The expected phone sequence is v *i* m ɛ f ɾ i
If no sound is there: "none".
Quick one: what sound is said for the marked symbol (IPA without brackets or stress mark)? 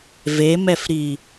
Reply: e